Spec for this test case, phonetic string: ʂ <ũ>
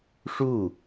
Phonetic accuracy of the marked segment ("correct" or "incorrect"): incorrect